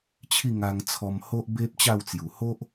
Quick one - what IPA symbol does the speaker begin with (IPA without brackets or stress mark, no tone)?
t͡ɕʰ